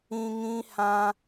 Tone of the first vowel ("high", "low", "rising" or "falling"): high